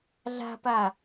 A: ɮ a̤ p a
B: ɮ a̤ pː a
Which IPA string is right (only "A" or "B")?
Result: A